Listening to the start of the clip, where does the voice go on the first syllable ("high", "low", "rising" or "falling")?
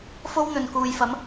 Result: high